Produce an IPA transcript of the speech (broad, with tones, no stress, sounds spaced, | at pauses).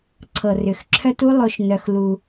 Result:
ǀʰ ɤ˨ r ʏ˨ x ǁʰ œ˦ t u˦ lˠ o˧ ʃ n œ˧ x l u˧